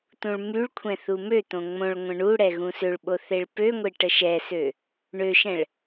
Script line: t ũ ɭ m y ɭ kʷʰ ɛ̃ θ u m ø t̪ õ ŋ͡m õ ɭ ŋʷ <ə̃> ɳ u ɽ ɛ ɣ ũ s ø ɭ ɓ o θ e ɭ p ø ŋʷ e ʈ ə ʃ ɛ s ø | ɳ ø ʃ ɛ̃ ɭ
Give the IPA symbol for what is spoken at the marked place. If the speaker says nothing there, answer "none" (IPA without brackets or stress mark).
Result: ə̃